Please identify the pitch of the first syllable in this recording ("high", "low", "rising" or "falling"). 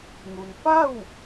low